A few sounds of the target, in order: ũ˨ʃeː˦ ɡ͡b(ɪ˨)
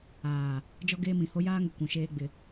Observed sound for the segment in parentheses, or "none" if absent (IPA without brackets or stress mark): ɪ˨